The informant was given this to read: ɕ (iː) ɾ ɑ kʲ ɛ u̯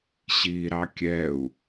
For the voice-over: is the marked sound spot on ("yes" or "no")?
yes